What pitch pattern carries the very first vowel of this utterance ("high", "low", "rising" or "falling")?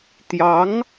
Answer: rising